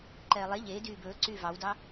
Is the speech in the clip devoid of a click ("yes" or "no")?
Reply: no